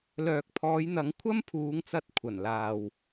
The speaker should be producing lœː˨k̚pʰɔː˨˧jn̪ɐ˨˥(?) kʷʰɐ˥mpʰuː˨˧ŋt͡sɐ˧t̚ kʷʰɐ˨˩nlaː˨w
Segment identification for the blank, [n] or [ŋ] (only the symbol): ŋ